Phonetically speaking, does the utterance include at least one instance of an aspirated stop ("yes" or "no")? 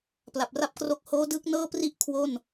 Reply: yes